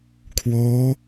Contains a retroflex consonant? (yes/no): no